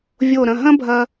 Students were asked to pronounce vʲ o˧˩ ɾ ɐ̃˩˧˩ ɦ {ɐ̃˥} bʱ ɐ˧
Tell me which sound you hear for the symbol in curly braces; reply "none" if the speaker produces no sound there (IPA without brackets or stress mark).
ɐ̃˥